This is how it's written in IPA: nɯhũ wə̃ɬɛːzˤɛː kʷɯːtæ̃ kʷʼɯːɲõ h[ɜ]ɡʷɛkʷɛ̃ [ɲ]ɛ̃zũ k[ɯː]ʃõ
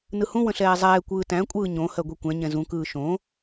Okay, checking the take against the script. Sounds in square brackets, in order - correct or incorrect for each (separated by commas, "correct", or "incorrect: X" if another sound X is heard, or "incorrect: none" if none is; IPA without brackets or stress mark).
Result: correct, correct, correct